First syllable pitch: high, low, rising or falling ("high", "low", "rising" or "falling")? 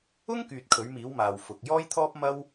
high